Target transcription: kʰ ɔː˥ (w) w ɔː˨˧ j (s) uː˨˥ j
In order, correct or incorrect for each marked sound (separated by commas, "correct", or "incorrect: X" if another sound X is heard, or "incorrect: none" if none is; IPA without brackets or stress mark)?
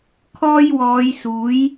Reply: incorrect: j, correct